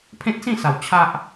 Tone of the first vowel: high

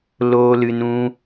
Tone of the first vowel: high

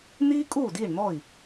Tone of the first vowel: high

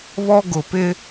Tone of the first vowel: high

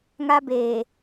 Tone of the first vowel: high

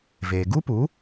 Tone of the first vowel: low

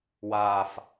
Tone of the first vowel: low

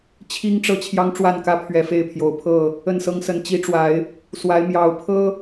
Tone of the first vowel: high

